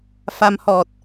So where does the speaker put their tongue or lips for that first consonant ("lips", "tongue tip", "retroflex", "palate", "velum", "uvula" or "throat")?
lips